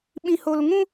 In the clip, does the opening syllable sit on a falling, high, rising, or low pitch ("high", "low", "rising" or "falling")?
high